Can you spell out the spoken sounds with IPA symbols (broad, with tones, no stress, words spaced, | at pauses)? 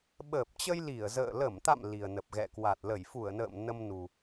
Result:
ɓəː˨˩p̚t͡ɕə˧j li˧˩ə̯zə̰ː˧˨ lə˧˩mt̪a̰˧˨m li˨˩ə̯nə˨˩p̚ɣɛ̰˧˨kwa˨˩t̚ lə˧˩jfu˧˩ə̯nə̰ː˧˨m nə˧m nu˨˩